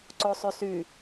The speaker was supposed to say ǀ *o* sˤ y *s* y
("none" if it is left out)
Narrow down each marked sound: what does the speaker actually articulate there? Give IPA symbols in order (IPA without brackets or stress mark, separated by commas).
o, s